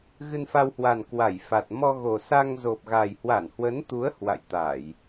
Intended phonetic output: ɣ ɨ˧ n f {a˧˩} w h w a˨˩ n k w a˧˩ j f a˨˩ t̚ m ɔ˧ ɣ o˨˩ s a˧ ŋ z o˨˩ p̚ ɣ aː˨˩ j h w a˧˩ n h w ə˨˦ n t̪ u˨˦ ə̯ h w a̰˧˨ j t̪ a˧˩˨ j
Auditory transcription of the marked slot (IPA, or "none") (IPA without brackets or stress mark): a˧